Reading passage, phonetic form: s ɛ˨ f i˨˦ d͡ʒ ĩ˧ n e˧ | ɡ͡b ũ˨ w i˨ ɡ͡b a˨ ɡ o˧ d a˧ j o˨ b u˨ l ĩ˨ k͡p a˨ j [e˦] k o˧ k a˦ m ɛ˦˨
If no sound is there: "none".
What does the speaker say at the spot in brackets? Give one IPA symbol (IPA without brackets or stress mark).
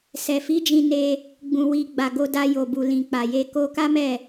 e˧